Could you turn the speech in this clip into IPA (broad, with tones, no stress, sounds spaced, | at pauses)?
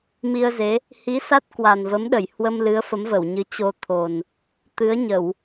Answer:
m i˧ ə̯ z e˨˦ | h i˨˦ s a˦˥ t̚ k w a˨˩ n v ə˨˦ m ɗ ə˧˩ j h w ə˧ m l ɨ˨˦ ə̯ f ə˨˦ m v ə˧˩ w ɲ ɨ˨˦ t͡ɕ o˧ t̪ʰ o˨˩ n | t̪ ɨ˨˦ ə̯ ɲ ə˧˩˨ w